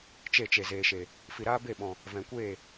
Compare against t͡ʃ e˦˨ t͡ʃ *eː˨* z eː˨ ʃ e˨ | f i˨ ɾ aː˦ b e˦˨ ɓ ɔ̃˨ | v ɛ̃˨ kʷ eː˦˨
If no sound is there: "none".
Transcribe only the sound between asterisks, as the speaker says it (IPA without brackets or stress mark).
e˨